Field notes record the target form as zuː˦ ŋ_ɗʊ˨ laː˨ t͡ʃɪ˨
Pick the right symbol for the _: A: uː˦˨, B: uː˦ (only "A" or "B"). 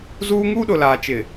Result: B